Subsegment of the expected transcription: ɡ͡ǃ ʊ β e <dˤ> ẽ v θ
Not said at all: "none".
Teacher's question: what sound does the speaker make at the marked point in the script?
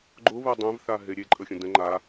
dˤ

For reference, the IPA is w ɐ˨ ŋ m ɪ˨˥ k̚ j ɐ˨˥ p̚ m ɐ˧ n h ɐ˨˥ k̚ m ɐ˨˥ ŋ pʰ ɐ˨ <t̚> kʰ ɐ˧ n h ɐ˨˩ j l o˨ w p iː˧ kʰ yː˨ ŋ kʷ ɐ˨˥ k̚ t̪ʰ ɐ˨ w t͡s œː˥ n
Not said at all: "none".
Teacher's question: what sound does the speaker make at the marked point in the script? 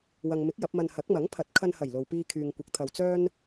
t̚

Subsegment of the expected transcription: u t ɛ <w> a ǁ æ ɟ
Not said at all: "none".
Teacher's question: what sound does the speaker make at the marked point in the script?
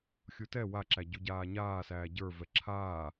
w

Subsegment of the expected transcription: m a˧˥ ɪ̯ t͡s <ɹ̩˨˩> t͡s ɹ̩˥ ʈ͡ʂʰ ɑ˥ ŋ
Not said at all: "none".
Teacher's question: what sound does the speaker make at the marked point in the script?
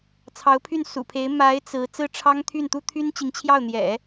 ɹ̩˧˥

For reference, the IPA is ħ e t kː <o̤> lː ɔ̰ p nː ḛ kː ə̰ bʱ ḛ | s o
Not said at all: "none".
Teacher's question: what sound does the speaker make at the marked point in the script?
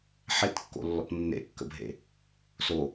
o̰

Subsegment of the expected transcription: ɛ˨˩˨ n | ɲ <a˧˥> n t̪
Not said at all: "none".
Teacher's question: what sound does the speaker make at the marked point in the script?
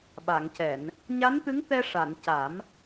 a˧˥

